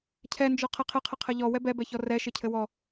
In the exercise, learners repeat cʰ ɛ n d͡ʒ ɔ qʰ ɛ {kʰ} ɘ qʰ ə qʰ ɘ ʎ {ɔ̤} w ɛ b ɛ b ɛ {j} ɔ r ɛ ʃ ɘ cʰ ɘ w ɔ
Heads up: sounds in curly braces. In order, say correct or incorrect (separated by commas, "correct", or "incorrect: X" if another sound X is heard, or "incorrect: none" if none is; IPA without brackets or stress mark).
incorrect: qʰ, incorrect: ɔ, incorrect: ç